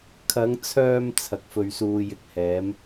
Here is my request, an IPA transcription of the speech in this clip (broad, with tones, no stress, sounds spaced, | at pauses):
kʰ ɐ˨˧ ŋ t͡sʰ œː˧ m t͡sʰ ɐ˨ k̚ f ɵ˧ ɥ s uː˧ j ɪ˧ k̚ h ɛː˨˥ m